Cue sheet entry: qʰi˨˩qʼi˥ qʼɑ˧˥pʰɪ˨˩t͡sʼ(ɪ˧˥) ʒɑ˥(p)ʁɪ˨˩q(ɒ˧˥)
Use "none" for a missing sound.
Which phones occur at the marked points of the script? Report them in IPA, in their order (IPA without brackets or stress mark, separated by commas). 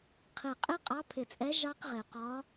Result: ɛ˧˥, q, ɒ˧˥